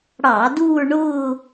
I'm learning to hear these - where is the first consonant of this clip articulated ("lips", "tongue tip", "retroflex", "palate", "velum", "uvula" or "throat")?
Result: retroflex